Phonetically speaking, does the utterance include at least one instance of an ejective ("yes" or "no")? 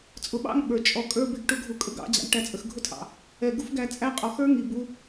yes